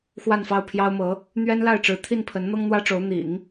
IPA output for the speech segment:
x w a˥˧ n f ɑ˥˩ ʊ̯ pʰ j ɑ˥ ʊ̯ m ɤ˧˥ | n̪ ɥ ɛ˥ n l a˥˩ ɪ̯ ʈ͡ʂ ɻ̩˧˥ t̪ʰ i˥˩ n pʰ ə˧˥ n n̪ ɤ˥ ŋ n̪ w ä˥ ʈ͡ʂ o˧˥ ʊ̯ n̪ ḭ˨˩˦ ŋ

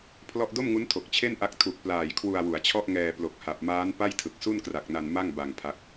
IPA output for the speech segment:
pʰ l ɔ˥˩ ʔ d o˥˩ m ŋ u˦˥ n tʰ o˨˩ k̚ t͡ɕʰ e˥˩ n ʔ a˦˥ k̚ tʰ u˨˩ k̚ p l aː˨˩ j kʰ w u˧ a̯ w u˩˦ a̯ t͡ɕʰ ɔ˥˩ ʔ ŋ ɛː˧ p l o˨˩ k̚ h a˨˩ p̚ m aː˦˥ n p a˥˩ j tʰ ɯ˨˩ k̚ s u˥˩ n k r a˨˩ k̚ n a˧ n m a˥˩ ŋ b a˧ ŋ pʰ a˦˥ k̚

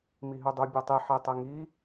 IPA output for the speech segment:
m i ɦ ʉ dˤ u bʲ ɒ tˤ i ħ e tˤ ɛ ŋ i

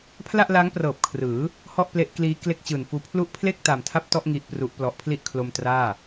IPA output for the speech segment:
pʰ l a˥˩ ʔ l a˦˥ ŋ p r ɤː˨˩ p̚ kʰ r ɯː˩˦ | h ɔ˥˩ ʔ p l e˦˥ ʔ k l iː˦˥ k l e˥˩ k̚ t͡ɕ ɯː˨˩ n f uː˧ pʰ l u˦˥ ʔ pʰ l e˥˩ k̚ t a˨˩ m tʰ a˥˩ p̚ t ɔ˥˩ ʔ ŋ i˦˥ ʔ p r u˦˥ ʔ p l ɔ˨˩ ʔ pʰ l i˥˩ ʔ kʰ l o˧ m t r aː˥˩

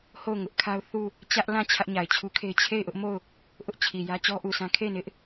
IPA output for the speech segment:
h o˦˨ ʊ̯ ŋ ʊ˦ ʔ kʰ a˦ ʊ̯ θ u˦˨ | t͡ɕ ä˦ ʔ l ã˦˨ t͡ɕʰ ä˦ ʔ ɲ a˨ ɪ̯ t͡ɕʰ u˦ kʰ e˦ ɪ̯ t͡ɕʰ e˦˨ ɪ̯ ʔ ʊ˦ ʔ m o˦˨ ʊ̯ | ʔ ʊ˦ ʔ t͡ɕʰ i˨ j ä˦ t͡ɕ ɔ˦ ʔ u˨ sʰ ã˦ kʰ e˦˨ ɪ̯ n ɪ˦ ʔ

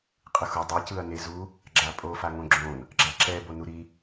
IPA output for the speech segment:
qʼ ɯ x o dˤ i c ɯ ɐ̯ n e z u | ɡ͡ǁ a pʼ o f a ŋ õ ɡ͡ǁ õ n | ɡ͡ǁ a ǁ ɛ b o n u ɾ i

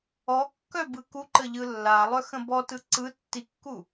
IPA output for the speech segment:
ɔ kː œ b ɯ k u ǃ ə ʎ ɯ lː a lˠ œ x ə̃ b ɔ t ɯ ǀ ɯ tː i kː u

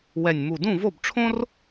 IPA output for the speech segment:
w ɛ˨˩ nʲ m u˨˩ d ũ˥˩ v o˥˩ b ʈ͡ʂʰ õ˥ r

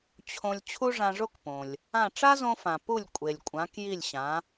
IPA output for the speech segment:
t͡ɕʰ õ˧ lʲ t͡ɕʰ u˥ ʐ ã˧ ʐ o˥ k p õ˩ lʲ | ã˥˩ ʈ͡ʂ a˥ z õ˧ f ã˩ p u˥˩ lʲ kʷʼ e˩ lʲ kʷʼ ã˩˥ k j i˥˩ lʲ ɕ ã˩˥

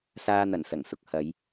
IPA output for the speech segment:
s aː˧ n̪ ɐ˨˩ n s ɐ˨˩ ŋ s ʊ˨ k̚ h ɐ˨˧ j

